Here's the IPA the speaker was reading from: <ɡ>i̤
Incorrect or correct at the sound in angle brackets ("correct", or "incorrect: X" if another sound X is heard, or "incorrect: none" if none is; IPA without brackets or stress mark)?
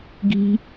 correct